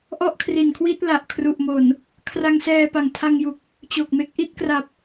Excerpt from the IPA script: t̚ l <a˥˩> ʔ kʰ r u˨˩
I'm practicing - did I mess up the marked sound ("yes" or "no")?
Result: yes